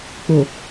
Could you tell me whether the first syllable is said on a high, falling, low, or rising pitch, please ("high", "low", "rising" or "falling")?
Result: low